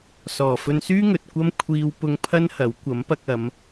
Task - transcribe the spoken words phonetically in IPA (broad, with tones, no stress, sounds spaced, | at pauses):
s ɔː˨˩ f ɵ˧ n s yː˥ ŋ ɵ˨ t̚ kʷ ɐ˥ m kʷʰ iː˧ w p ʊ˧ ŋ pʰ ɐ˥ n h ɐ˨˥ w kʷ ɐ˨˥ m p ɐ˧ k̚ ɐ˨˧ m